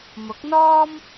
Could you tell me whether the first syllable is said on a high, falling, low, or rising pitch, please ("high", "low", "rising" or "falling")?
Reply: rising